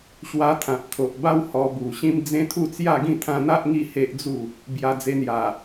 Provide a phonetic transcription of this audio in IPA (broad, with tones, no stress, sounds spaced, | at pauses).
ɕ w a˧ t̪ʰ ã˨ p̚ t̪ʰ o˨ ʔ b a˦ w h ɔ˧ b u˨˩ ɕ ĩ˦ m d͡z ẽ˦ t̪ʰ u˥˧ t͡s j a˥˧ ɡ ĩ˥˧ t̪ʰ ã˧ n̪ a˦ ʔ ŋ i˥˧ h e˦ ʔ d͡z u˥˧ | b j a˧ d͡z e˧ n̪ j a˨˩